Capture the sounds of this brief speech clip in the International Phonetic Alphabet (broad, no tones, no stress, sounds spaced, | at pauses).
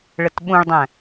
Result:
ɭ ə t ɓ ũ ɭ dˤ æ̃